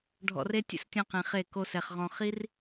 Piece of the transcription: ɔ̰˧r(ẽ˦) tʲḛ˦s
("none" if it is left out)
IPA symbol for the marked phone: e˦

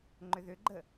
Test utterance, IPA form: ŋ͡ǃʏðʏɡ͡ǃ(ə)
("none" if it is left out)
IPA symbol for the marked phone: ə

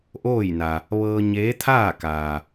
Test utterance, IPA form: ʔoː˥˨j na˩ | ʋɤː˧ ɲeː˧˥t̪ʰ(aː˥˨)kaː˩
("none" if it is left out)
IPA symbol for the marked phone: aː˥˨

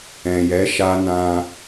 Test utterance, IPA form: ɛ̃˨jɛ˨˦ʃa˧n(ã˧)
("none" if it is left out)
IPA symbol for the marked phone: ã˧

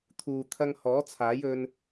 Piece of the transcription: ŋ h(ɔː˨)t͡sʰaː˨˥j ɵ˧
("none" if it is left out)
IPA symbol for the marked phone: ɔː˨˥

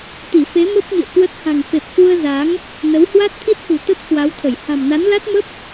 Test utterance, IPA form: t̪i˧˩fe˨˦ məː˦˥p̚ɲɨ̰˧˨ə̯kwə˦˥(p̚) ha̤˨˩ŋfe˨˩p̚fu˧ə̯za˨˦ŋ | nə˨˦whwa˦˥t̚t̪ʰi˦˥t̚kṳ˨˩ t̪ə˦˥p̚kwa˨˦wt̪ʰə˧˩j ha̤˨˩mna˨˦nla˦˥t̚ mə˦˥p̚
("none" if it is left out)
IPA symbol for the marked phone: t̚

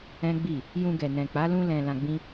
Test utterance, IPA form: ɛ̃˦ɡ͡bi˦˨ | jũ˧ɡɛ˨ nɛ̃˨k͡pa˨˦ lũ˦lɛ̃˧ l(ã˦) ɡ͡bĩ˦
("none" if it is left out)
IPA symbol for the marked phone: ã˧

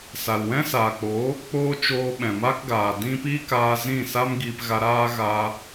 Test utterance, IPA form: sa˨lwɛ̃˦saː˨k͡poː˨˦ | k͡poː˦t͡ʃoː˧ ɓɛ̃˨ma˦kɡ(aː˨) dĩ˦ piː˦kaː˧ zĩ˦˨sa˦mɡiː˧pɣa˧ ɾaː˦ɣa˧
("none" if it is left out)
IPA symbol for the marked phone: aː˨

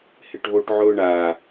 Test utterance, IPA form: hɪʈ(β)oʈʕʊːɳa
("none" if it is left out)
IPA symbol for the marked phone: β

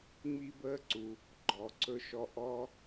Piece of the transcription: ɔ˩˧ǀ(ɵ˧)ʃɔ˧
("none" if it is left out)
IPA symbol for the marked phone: ɵ˧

